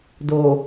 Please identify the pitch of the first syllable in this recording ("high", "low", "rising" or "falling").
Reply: low